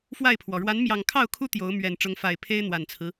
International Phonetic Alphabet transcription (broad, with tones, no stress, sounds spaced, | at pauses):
f w a˥˨ ɪ̯ pʰ w ɔ˩ ɻ w a˨˦ n m j ɑ˨˩ ŋ kʰ ɑ˥˨ ʊ̯ kʰ u˦ t̪ j o˨˦ ʊ̯ m ɥ ɛ˨˩ n ʈ͡ʂ ʊ˨˦ ŋ f a˨˩ ɪ̯ pʰ e˦ ɪ̯ n̪ w a˨˩ n t͡sʰ ɹ̩˦